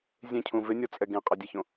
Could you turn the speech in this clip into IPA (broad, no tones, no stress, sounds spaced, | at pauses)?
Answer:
zʲ ẽ cʰ ũ v ɪ nʲ ɔ t͡sʼ ɛ ɡ ẽ qʼ a dʲ ɛ ç õ